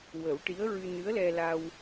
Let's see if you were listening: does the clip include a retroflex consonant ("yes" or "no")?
yes